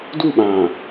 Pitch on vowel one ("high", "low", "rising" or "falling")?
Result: falling